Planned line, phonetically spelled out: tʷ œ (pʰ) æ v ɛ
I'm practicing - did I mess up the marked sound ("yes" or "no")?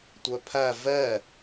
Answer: no